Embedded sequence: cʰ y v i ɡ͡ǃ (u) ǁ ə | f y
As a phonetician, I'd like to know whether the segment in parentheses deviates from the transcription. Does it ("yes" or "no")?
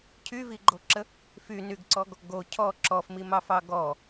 yes